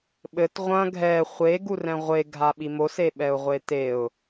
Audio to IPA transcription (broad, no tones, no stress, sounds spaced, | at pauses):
ɓ ɘ t ʁʷ ɐ̃ ɡʱ ɛ χʷ e ɡ u r ɛ̃ ʁʷ e ɡʱ a ɓ i m o s e ɓ ɛ ʊ̯ ʁʷ e t e ʊ̯